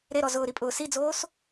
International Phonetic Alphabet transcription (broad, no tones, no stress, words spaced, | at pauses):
ɾeɾɔ zʊːɾipʼʊː sid͡zoːs